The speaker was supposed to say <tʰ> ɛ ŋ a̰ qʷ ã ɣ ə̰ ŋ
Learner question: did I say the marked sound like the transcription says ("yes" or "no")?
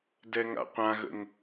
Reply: no